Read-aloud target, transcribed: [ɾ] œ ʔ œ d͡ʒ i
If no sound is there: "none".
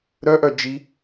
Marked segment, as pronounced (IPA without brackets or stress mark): ɾ